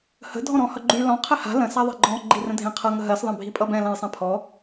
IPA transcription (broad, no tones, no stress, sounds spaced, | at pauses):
h ə̤ dʱ ɔ̃ ɾ ɔ̃ h ʌ ɡ͡ǃ y l ɔ̃ qʰ ɛ h a̤ l ə̃ s a ðˤ e̤ ɡ͡ǃ ɔ̃ ɡ͡ǃ i r ə̃ dʱ ẽ qʰ ʌ ŋ ə ɦ ɜ s ðˤ ẽ bʱ i pʼ ʌ b ɛ̃ l ã j sˤ ɛ̃ pʰ ɔ